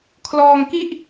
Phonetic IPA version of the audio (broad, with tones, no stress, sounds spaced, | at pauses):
kʰ l ɔː˧ ŋ k i˥˩ ʔ